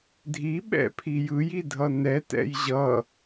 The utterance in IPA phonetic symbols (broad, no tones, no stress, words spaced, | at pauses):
dʱiɓɛ̰pʰi jɯjidʱʌ nɛtɛ̰j ʑʌ